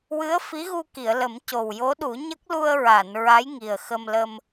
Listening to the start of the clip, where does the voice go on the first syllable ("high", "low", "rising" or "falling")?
rising